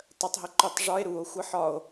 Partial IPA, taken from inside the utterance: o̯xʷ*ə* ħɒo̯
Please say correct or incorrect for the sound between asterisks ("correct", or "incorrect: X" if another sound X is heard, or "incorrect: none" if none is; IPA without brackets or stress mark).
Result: correct